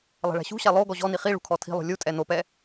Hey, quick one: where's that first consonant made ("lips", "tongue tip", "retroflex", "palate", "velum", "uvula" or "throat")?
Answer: tongue tip